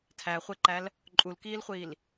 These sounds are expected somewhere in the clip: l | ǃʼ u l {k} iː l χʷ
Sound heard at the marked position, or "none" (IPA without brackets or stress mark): k